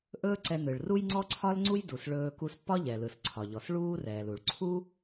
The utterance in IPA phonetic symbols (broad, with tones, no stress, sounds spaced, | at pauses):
ʔ ɵː˥ ǀ ɛ˧ n ɯ˩ ɭ r u˥ j ŋ͡ǀ ɔ˥ ǀʰ ɒ˥ l ŋ͡ǀ u˥ j d u˩ s ɭ ɵː˧ k u˧ s pː ɒ˥ ʎ ɛ˩ l ɯ˩ s ǀʰ ɒ˩ ʎ ɔ˩ s ɭ uː˥ r ɛː˩ l u˩ ɭ ǀʰ u˥